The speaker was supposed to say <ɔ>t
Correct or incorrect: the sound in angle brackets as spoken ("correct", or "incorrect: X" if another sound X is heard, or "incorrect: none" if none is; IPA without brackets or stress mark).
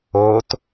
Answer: incorrect: o